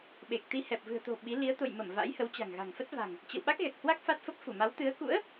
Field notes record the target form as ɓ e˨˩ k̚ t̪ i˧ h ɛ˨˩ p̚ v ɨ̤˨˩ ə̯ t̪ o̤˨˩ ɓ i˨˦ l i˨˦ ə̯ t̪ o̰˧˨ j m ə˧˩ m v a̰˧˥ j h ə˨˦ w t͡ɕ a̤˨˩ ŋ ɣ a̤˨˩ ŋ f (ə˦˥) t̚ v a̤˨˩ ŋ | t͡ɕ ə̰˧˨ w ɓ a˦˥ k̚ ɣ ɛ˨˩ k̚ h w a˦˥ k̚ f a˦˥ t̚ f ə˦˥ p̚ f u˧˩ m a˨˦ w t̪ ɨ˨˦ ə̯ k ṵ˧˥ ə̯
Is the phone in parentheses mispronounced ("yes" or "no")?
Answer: no